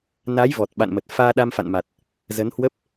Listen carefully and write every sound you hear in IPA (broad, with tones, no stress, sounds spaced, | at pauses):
n a˨˦ j v ɔ˨˩ t̚ ɓ a̰˧˨ n m ə˨˩ t̚ f aː˧ ɗ a˧ m f a̰˧˨ n m a˨˩ t̚ | z ə˨˦ n h w ə˦˥ p̚